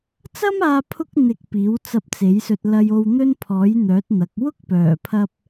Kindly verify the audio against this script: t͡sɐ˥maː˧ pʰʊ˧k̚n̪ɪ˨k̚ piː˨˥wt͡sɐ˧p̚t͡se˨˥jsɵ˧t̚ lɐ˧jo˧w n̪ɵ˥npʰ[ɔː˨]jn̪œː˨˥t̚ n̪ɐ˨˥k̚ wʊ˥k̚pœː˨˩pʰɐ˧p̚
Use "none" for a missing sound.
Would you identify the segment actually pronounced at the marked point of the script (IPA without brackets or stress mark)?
ɔː˨˥